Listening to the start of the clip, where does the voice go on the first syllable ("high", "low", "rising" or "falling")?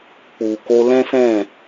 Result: low